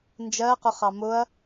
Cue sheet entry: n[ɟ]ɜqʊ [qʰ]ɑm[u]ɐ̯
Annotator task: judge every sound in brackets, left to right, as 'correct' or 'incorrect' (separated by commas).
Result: incorrect, incorrect, incorrect